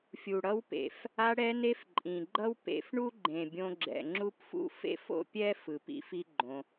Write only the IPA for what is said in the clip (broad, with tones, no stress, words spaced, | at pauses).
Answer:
fʲu˨ɽʌ˧wpḛ˨f | a˧ɽɛ˧ne˧f ǃʼĩ˨ɡ͡ǃʌ˦wpḛ˧f ɳu˦ɡ͡ǃẽ˨bʲõ˧ ɡ͡ǁɛ̰˨ŋ͡ǁu˦pfṵ˦fḛ˦f o̰˦pʲɛ˦ fɯ˨pḭ˦fi˦ɡ͡ǃõ˧